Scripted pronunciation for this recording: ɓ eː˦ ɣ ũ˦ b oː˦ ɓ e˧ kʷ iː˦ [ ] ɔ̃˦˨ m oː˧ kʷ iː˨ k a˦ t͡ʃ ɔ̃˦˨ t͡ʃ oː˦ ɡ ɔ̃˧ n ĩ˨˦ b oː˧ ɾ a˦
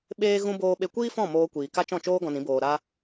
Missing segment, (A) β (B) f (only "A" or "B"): B